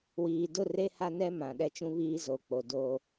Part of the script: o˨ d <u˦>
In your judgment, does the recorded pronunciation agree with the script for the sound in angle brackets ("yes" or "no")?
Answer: no